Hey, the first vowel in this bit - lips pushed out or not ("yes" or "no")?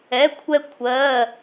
no